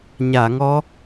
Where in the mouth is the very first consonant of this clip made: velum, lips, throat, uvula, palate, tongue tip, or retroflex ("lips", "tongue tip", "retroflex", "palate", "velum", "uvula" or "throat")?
palate